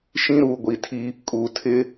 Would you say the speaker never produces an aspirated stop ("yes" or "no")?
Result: no